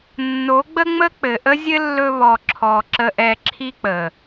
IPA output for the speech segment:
nː o˨˦ ɡ͡b ə˦ ŋ͡m ə˦ k͡p ɘ˨ ʔ ə˦ zʲ ɘ˦ lː ɵ˧ β ɔ˨ ǁʰ ɔ˨ ǁ ə˧ ʔ ɛ˧ ǁʰ i˦ k͡p ə˨

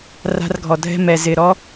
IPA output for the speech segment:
r a̤˧ r ɡʱ ɔ˨ dʱ ɛ̤˧ m ɛ˨ z ɪ˨ ɾ ɔ˦

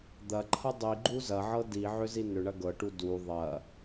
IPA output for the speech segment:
d̪ ɐ ǃʰ ɐ dˤ i ɡ͡ǃ u z ɐ ʕ ɤ d i ʕ ʏ z i n ʏ ɳ ɐ ɡ ɤ ʈ u d u ðˤ ɐ

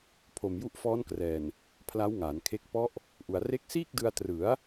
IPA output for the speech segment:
pʰ o˨˩ m j u˦˥ ʔ f ɔː˦˥ n k r ɛː˨˩ n | pʰ l a˦˥ w ŋ aː˩˦ n kʰ e˦˥ k̚ p ɔ˦˥ ʔ | ʔ u˨˩ a̯ r e˦˥ k̚ s iː˥˩ k̚ d ɯ˧ a̯ t r ɯ˩˦ a̯

